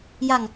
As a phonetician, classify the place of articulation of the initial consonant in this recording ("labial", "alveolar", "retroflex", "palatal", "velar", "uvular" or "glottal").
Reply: palatal